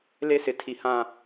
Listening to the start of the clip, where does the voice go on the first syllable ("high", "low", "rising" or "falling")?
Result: high